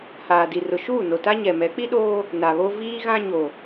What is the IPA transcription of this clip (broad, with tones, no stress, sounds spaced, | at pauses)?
h aː˨ d i˨ r ʊ˨ ʃ uː˦˨ n o˨ t a˦ ɲ ɛ˨ m ɛ˨˦ k͡p i˦ ɗ oː˦ | n a˨ β o˦ v iː˦ ɣ ã˦ ɲ o˨